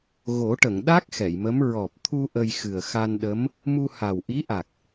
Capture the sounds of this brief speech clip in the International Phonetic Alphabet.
ɣo˨˩˦ʈə˨˩˨ŋ ɗa˦˥k̚ xɛ˨˩˨jmə˧˥m ɹɔ˨˩p̚t̪ʰu˧ ʔə˧jxɨ˨˩ə̯xa˧nɗə˧˥m | mu˧ha˨˩wʔi˧˥ʔa˨˩k̚

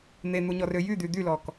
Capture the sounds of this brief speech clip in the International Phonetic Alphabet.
n̪en̪uɲɔrø jyd̪y d̪ylɔk

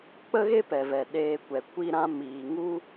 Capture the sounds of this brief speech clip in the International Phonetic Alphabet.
k͡pə˦ɣe˦ pɛ˨vɛ˨ɗeː˧kʷɛ˨ kʷi˧ɾã˧ miː˨ ŋu˦

